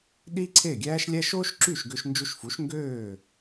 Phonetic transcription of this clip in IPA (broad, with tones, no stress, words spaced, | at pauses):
ɗi˥ǀʰe˥˩ɡʲæː˥ʃlʲæ˥ʃ oː˥ʃǁy˥˩ʃ ɡø˧ʃnd͡ʒu˧ʃfu˩˥ʃ ŋɡøː˥˩